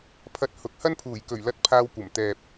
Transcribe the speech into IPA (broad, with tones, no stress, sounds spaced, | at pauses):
pʰ ɐ˧ t̚ h ʊ˨˥ k̚ h ɐ˥ n pʰ uː˨˩ j k ɵ˨˩ ɥ l ɐ˧ t̚ pʰ aː˧ w kʷ ɐ˨˩ m t̪ ɛː˨ p̚